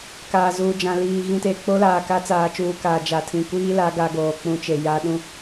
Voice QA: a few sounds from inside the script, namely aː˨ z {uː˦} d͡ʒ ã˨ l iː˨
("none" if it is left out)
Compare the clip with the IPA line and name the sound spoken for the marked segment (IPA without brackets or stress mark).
uː˨